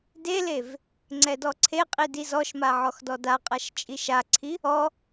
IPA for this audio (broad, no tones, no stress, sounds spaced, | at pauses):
d e l e v | ŋ͡ǀ ɛ d ɔ ǀʰ e qʼ i d i z ɔ ʃ m a ʕ ɔ x d ɔ d a qʼ a ʃ t͡ʃʼ i ʃ a ǀʰ i | ɔ